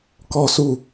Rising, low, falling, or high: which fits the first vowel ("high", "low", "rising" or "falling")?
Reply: high